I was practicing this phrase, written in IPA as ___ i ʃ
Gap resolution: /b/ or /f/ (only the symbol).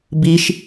b